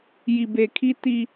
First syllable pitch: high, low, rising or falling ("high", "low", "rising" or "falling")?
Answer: low